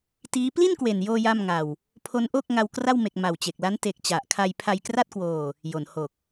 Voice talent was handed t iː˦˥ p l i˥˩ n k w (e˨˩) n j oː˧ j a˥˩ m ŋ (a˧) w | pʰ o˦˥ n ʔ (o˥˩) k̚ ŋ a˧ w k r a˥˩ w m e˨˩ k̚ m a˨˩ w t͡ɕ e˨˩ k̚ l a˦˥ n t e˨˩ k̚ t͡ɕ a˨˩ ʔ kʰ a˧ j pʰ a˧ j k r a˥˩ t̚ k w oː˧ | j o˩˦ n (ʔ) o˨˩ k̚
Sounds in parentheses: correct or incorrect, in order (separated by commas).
correct, correct, correct, incorrect